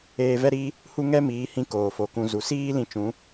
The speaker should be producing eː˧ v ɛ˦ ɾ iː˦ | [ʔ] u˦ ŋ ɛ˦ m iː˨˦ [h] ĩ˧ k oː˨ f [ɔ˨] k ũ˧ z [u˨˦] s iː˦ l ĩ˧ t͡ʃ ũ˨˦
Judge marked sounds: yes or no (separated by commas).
no, yes, no, yes